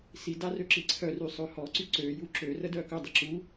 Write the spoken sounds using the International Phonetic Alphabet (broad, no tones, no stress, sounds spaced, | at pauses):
s i d a r ø ǁ i ǀʰ œ r y sˤ ø h ɔ ǀ y ǀ ø j u ǁ ø r ə d œ k œ dˤ i ǁ u